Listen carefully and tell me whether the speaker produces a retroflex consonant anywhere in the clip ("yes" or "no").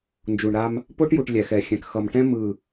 yes